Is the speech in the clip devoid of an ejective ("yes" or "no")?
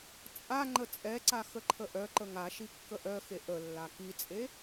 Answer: no